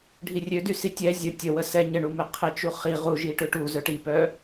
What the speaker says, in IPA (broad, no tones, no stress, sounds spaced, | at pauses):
ɖʱ i rʲ ø d y s i tʲ ɛ zʲ ə tʲ ə w ə s ɛ ɲ ə ɳ u m e qʰ e t͡ʃ u χ i ʁ u ʒ i ʈ ø ʈ u z œ ʈ i p œ